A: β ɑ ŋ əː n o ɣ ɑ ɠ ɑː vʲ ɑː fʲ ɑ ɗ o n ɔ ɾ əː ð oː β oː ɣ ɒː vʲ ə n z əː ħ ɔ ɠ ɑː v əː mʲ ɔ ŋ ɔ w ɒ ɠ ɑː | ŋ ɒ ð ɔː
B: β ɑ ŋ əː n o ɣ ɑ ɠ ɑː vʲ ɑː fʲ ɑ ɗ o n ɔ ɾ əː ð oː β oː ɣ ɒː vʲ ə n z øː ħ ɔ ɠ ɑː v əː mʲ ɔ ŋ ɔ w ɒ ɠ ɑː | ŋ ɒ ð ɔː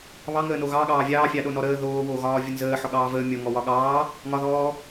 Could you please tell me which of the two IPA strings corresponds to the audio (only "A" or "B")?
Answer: A